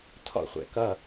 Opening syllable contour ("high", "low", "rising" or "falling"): falling